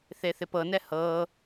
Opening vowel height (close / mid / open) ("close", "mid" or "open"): mid